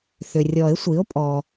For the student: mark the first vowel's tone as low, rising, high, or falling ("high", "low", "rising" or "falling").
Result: low